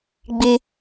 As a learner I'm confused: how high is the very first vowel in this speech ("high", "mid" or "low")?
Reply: high